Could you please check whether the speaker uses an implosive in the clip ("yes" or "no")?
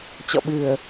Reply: yes